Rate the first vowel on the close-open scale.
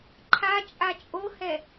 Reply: open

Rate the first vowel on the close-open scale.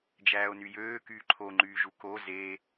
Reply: open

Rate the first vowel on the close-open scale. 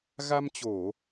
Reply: open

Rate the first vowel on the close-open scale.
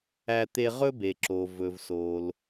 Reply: open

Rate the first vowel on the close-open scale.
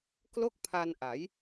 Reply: mid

